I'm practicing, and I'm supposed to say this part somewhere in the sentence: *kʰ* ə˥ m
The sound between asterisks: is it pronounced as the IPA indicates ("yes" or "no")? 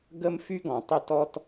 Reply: no